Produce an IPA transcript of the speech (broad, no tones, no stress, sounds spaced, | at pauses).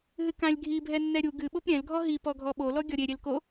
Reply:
ɦ ɨ k ã lʲ ɡʱ i bʱ ɛ nː ɛ ɾʲ u ɡ ɨ ɓ o p ɾʲ ɛ̃ l ɡʱ ɔ ɦ i p ɔ ɡʱ ɔ ɓ o l ɔ ɡʲ ɔ ɾʲ e ɾʲ e l k o